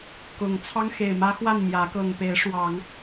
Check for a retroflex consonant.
present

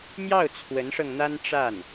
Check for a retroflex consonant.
present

